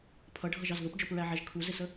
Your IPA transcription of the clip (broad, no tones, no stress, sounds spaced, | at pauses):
pʰ ʌ ɖʱ ʌ ʒ ɑ z ð ʊ p d͡ʒ ɔ p ɹ æ ʕ æ ʒ kʰ u z ɪ s ə